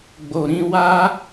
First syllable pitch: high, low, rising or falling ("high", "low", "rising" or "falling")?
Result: low